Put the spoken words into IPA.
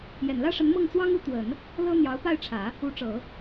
j ɛ˨˩ n l ä˥ ʂ ə˧˥ n m ɤ˥˩ ŋ t͡s w ɑ˥ ŋ u˧˥ t̪ w ə˨˩˦ n | l ɤ˥ n̪ j ɑ˧˥ ʊ̯ p a˥˩ ɪ̯ ʈ͡ʂʰ ä˨˩˦ | u˧˥ ʈ͡ʂ ɤ˨˩˦

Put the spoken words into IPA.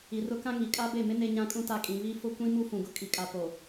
i˨ r ʊ˦ k ã˦ ŋ i˨ kʼ a˦ b e˦˨ m ɪ˦ n e˦ ɲ ã˦ kʼ ũ˦ t a˦˨ kʼ ĩ˨ β i˦ f ʊ˦ kʷ ĩ˦ m u˦ f ũ˨ ɡ ʊ˦ kʼ i˨ kʼ a˨ p o˨

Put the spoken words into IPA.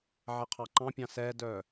ʕ ɛ qʰ ɑ ǃ ɑ̃ pʲ ɑ̃ s ɛ d œ

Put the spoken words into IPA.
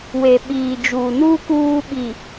w e˨ ɓ iː˨ d͡ʒ uː˨ n uː˦ k uː˦ ɓ i˨

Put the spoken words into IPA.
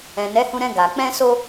ɛ̃˨ n ɛ˨˦ h ũ˧ ɾ ɛ̃˧ ɡ a˨ k͡p ɛ̃˧ s o˧

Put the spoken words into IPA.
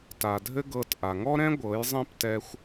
t a˨ dʱ ɘ˦ ɡ ɤ˧ t ʔ a˨ ŋ ɔ˦ ɾ ɛ̃˦ ɡʷ ɤ˨˦ j zˤ ĩ˦ p t ɛ˦ xʷ

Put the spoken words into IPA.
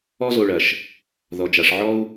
ɔ˦ z o˨ ɭ ɐ˩ ʃ | ð ɔ˩ d͡ʒ a˩ ʂ ʕ ɔ˥ u̯

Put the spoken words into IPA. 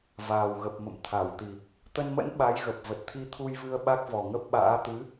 v aː˨˩ w ɣ ə˨˩ p̚ m ə̰˧˨ m t̪ʰ a˧˩ w t̪ i˨˩ | t̪ ə˧ n m ə̰˧˥ n ɓ a˨˦ j ɣ ə˨˩ p̚ v ə˨˩ t̚ t̪ʰ i˧ t̪ʰ u˧ j v ɨ˧ ə̯ ɓ a˦˥ k̚ v ɔ˨˩ ŋ ə˦˥ p̚ ɓ a̰ː˧˥ t̪ ɨ˨˦

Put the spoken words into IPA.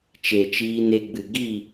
t͡ʃ e˨ t͡ʃ iː˧ n e˧ ɡ͡b ɨ˨ ɡ i˦˨

